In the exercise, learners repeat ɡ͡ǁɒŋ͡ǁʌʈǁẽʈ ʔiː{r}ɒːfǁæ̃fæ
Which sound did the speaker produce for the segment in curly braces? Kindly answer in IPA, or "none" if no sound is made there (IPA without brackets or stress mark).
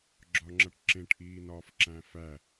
n